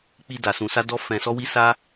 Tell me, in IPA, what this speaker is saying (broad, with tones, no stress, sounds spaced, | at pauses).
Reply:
k͡p i˧ d a˨ s ũ˧ s a˦ d ɔ˦ f ɛ̃˧ s ɔ˦ w i˦ s a˦